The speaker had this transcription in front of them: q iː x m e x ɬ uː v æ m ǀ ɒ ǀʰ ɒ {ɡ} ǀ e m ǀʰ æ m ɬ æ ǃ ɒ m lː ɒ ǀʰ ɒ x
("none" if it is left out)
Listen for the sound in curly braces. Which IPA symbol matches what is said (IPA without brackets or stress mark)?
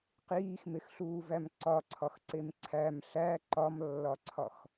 x